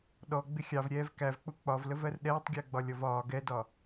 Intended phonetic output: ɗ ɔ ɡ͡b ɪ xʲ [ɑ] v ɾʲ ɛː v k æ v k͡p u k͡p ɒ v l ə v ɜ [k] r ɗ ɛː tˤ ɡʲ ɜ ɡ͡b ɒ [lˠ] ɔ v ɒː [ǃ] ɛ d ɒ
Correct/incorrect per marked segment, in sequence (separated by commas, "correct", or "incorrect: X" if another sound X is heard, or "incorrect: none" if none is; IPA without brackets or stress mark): correct, incorrect: none, incorrect: lʲ, incorrect: ɡ